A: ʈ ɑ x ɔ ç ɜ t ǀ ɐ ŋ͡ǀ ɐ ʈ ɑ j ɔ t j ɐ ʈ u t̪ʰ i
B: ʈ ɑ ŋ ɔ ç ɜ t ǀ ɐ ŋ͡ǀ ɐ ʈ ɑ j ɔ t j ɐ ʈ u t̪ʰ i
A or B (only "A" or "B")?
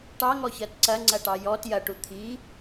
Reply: B